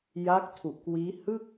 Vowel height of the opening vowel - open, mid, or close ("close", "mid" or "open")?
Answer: open